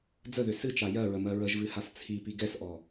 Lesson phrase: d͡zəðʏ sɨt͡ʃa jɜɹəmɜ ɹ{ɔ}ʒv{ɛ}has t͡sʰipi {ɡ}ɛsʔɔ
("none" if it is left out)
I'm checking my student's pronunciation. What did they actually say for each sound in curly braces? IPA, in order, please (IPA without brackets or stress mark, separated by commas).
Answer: ə, ɨ, ɡ